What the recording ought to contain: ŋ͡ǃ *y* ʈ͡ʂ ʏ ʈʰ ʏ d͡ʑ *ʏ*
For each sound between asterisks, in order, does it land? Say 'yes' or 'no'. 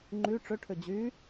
yes, no

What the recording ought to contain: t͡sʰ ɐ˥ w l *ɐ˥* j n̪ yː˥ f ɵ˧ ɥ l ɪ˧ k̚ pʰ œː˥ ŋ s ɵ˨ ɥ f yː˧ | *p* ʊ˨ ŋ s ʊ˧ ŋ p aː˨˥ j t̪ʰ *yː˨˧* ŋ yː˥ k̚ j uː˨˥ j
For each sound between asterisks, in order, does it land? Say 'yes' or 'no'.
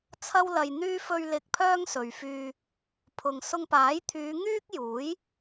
no, no, yes

